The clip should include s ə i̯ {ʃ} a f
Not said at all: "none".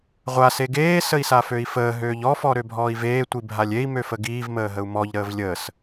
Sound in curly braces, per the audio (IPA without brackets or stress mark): s